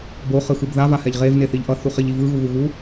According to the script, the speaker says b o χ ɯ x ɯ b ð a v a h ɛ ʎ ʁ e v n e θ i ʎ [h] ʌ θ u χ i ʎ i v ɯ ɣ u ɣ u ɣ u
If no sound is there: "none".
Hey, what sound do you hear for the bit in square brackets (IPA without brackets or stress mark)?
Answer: ʔ